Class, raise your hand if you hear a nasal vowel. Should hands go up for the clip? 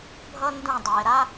yes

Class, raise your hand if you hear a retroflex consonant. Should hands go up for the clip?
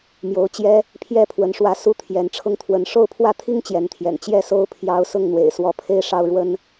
yes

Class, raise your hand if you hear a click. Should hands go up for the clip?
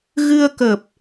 no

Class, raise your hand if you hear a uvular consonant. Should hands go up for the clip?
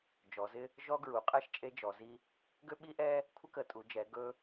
yes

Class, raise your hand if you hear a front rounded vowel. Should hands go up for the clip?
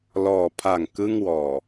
no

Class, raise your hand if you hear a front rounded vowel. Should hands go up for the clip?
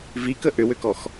yes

